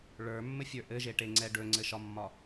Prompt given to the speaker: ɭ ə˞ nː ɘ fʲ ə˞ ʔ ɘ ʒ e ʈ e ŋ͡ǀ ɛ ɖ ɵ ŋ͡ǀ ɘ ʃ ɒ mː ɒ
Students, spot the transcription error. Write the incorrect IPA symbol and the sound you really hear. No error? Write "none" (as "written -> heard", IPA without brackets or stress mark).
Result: nː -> mː